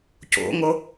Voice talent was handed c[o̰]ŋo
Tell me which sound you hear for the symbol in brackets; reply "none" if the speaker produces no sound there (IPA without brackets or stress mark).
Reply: o̰